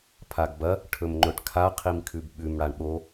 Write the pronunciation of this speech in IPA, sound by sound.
pʰ a ɡ b ɐ | ʈʰ ɵ m ŋ͡ǃ ɵ ʈ kʰ a qʰ i m kʰ ʉ b ɓ ʉ m ɽ a ɳ ɓ o

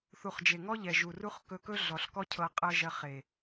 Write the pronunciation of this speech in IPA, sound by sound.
θ u˨ χ d͡ʒ e˨ ŋ ɔ˦ ʎ ɛ˨ ʒ u˨ r u˦ χ k ɵ˧ k ɵ˦ ɮ ɔ˨ ɬ k ɔ˦ cʰ ɤ˧ qʼ ɤ˦ ʒ ɜ˧ χ e˨

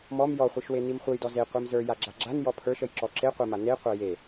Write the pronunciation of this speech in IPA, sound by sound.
m ɔ m j ɔ χʷ i ʃ w e n i m χʷ ə j d ɔ z e qʷ i m z ə˞ j a ɡ͡ǁ a ɡ͡ǁ a n j ɔ pʰ ə˞ ʃ ə j ǁ ɔ ǁ e qʷ ə˞ m a n e qʷ a j e

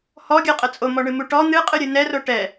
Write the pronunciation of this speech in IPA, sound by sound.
h ɔ ɡʲ a qʼ ə t͡sʼ o m ɔ ɳ ɨ m u ʈ ɔ n̪ ɨ qʼ ɨ ɾʲ ɨ n ɛ r o ʈ ɛ

